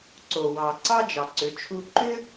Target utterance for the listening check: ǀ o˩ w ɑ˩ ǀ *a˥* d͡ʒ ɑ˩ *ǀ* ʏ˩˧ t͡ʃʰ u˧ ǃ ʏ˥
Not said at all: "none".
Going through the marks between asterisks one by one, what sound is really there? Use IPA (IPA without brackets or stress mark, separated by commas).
ɑ˥, ǀ